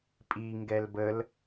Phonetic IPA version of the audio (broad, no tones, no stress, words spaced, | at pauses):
pʼi ŋɡɛlbəl